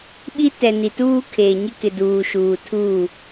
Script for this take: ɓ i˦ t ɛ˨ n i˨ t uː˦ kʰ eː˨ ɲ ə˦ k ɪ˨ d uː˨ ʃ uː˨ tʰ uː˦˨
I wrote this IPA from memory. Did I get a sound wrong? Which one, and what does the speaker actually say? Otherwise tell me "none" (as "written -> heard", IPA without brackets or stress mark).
ə˦ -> ɪ˦